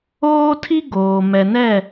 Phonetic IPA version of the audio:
oː˦ tʰ i˦ ɡ oː˨ m ɛ˨ n ɛ˦˨

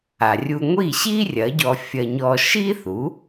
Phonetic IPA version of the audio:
a˩ rʲ u˧ ŋʷ i˥˩ ɕ i˥ rʲ ɐ˩˥ ɟ ɔ˧ fʲ ɐ˧ ɲ ɔ˧ ʃ i˥ θ u˩˥

